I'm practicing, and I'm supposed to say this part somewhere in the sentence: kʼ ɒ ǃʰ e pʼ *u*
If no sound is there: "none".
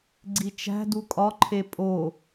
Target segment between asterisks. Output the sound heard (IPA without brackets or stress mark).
o